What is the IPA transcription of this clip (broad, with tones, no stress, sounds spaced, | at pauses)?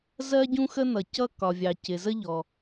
z ɜ˥ ɟ ũ˥ x ə˥ n ʌ˨ c ʌ˥ k ɒ˨ vʲ ɑ˨ c ɪ˨ z ə˥ ʎ ɔ˨